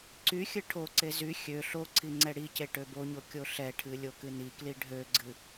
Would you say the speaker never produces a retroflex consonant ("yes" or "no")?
no